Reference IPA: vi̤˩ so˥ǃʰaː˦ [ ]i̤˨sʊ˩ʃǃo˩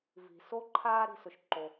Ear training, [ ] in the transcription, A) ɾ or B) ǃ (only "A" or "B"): A